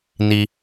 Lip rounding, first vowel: unrounded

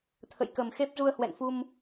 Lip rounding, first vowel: unrounded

